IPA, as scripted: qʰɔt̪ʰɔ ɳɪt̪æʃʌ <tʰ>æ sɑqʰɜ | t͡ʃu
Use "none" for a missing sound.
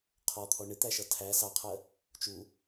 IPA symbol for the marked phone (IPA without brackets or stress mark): tʰ